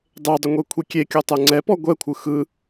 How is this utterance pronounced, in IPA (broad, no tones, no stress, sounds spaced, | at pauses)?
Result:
dˤ e dˤ ə ŋʷ e kʷʰ i kʲ e kʲ ɔ tˤ ɛ ŋ͡ǀ ɛ p ɔ ɡʷ ɛ kʷʰ ɯ x ɯ